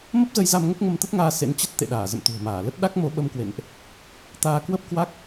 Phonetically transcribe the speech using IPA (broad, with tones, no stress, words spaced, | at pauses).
mə˦˥p̚zə˧jza˧m ŋə˦˥p̚ŋə˧mt̪ə˦˥t̚ŋaː˧ sḛ˧˥nt͡ɕə˦˥t̚ t̪ḛ˧˨ɗaː˧˩ zə̰˧˨mt̪ṳ˨˩ə̯ maː˧˩lə˦˥t̚ ɗa˦˥k̚mo˨˦ɓə˧mkwḛ˧˨nʔ | t̪aː˧kwə˦˥p̚ kwa˦˥k̚